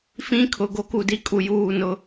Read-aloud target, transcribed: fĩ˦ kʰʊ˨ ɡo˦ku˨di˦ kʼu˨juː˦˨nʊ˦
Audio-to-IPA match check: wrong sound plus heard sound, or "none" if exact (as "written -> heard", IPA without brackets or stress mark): none